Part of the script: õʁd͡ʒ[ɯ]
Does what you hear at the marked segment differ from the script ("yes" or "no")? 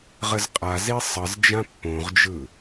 no